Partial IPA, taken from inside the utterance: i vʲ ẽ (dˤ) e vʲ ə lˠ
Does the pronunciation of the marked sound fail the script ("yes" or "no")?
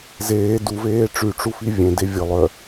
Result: yes